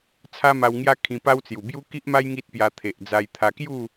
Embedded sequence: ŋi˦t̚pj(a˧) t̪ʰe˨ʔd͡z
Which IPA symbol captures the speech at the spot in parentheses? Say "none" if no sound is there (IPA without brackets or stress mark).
a˧